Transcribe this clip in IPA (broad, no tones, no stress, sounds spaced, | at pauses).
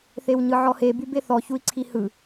θ e w ɲ ɯ ʕ ɔ h e b y b e θ ɔ ç u i̯ ǀʰ i h ɯ